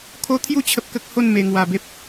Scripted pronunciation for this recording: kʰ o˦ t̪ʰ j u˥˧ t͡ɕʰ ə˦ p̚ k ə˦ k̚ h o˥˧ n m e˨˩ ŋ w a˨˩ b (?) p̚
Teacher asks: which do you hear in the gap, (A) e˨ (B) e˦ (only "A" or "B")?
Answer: B